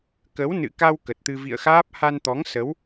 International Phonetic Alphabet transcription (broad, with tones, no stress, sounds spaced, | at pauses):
k ə˨˦ w n ɨ̰˧˨ k a˧ w k ə˨˩ t̚ t̪ ɨ˧ v ḭ˧˨ ə̯ x aː˦˥ p̚ h a˧ n t̪ ɔ˨˦ ŋ s ə˨˦ w